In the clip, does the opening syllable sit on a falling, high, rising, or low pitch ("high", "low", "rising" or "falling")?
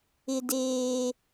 high